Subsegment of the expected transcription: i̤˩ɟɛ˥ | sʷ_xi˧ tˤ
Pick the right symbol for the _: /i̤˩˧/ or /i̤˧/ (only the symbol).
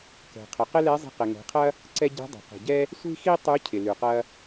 i̤˧